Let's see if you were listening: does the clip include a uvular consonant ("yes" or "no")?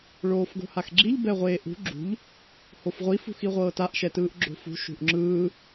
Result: yes